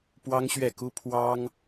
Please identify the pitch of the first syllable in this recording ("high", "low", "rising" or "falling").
high